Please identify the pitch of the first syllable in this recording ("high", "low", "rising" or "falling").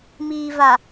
low